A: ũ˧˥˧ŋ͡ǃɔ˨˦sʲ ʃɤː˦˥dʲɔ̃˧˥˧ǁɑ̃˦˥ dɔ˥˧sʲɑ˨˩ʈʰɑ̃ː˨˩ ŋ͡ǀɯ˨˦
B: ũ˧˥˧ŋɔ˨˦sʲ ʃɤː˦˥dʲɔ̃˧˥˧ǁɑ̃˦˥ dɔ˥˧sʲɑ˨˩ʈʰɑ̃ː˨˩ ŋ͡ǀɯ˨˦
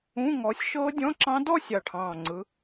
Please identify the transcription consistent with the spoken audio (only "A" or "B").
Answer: B